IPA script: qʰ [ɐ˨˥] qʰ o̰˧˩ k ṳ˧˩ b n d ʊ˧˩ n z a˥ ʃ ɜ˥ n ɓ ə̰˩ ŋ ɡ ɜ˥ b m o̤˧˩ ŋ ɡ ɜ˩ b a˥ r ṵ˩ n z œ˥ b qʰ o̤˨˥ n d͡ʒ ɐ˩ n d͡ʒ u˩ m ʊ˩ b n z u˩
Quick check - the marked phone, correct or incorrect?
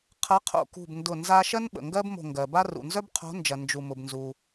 correct